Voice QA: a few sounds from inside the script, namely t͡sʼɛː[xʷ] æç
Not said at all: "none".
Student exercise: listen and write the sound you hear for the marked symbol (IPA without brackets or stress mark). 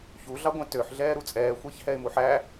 xʷ